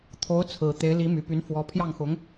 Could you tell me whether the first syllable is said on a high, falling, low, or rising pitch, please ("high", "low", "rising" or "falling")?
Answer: rising